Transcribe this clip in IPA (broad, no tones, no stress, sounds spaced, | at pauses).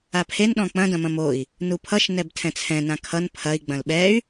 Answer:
a pʰ e n ɗ ɔ̃ k͡p ɐ̃ d ɐ̃ m ɐ̃ m o i̯ | n u pʰ ʌ ʃ n ɛ b tʰ ɛ̃ t͡sʰ ɛ̃ n ã kʰ ʌ n pʰ ɐ i̯ ɡ͡b ɐ̃ l ɓ ɛ y̯